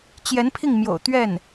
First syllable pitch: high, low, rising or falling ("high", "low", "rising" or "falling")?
rising